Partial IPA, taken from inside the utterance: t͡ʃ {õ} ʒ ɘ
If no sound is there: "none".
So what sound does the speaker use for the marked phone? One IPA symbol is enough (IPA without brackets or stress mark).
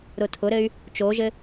o